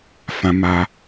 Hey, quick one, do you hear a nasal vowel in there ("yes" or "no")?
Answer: yes